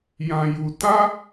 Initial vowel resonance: nasal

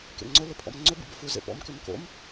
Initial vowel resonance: oral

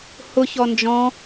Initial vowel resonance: oral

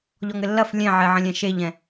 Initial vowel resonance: oral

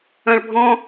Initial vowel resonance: nasal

